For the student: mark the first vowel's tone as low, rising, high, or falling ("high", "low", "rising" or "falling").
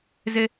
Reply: high